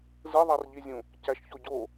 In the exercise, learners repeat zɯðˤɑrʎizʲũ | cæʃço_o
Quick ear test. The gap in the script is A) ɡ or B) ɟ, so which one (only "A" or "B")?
B